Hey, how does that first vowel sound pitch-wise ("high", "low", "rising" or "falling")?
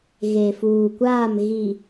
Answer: low